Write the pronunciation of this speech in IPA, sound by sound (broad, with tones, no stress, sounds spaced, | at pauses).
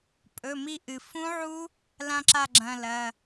pʼ ɵ˩˧˩ m i˦˨ ʔ ɨ˩ f ũ˦˥ ʕ u˦˥ | l ã˦˥ ǁ a˦˨ ɡ͡ǁ ɐ̃˩˧˩ l ɐ˩˧˩